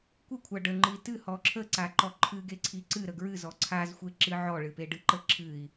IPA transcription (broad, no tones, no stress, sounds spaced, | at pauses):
kʷ ɨ kʷʰ a ɖ ə ŋ͡ǃ ɨ i̯ t ɨ h ɔ ǁʰ ə ǀ a ǃ ɔ ǃʰ ɨ ɡ e ǀʰ i ǀ ɨ ɾ ə ɡ ɹ ɨ z ɔ ǀʰ a z xʷ e ǁ ɨ ʕ ɔ ɭ ɨ p e ɖ ɨ ǃ ə ǁʰ ɨ i̯